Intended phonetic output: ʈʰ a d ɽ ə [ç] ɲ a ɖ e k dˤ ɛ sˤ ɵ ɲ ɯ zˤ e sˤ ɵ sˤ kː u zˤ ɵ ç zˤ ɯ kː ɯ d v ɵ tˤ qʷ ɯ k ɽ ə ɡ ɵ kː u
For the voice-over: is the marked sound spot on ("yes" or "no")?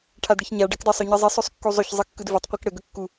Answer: yes